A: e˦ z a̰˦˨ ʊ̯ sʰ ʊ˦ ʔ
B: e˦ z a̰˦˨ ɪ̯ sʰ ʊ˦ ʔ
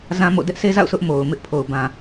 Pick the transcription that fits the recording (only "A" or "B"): A